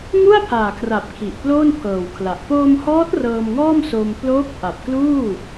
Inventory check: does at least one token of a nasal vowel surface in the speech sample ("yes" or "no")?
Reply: no